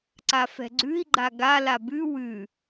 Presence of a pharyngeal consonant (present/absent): absent